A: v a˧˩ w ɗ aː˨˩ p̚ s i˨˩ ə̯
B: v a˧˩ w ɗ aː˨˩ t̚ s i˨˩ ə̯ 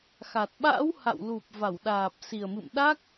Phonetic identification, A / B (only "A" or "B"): A